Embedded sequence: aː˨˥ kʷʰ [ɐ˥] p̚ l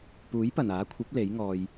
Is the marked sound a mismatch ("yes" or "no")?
yes